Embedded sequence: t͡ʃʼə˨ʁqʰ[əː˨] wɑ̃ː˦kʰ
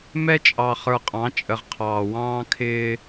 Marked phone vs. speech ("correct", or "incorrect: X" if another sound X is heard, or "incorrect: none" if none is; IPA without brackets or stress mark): incorrect: ɑː˨